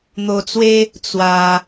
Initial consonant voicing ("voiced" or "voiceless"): voiced